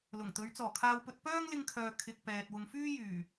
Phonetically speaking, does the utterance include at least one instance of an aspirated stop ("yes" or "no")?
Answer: yes